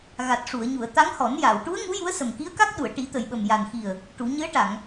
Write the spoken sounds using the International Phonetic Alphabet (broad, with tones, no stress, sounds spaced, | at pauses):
ɣ a˨˩ t̚ ʂ u˨˩˨ ə̯ ɲ u˨˩˨ ə̯ t̪ a˧˥ ŋ h ɔ˨˩˦ n j a˨˩˨ w ʈ u˧˥ ə̯ ŋ u˧˥ j u˧˥ ə̯ s ə˨˩ m k i˧˥ ə̯ k a˦˥ k̚ ɗ u˨˩˨ ə̯ ʈ i˨˩˦ t̪ ə˨˩ j ɓ ə˨˩ m j a˨˩ n x i˨˩ ə̯ | ʈ u˨˩˦ ɲ ɨ˧˥ ə̯ ʈ a˨˩˨ ŋ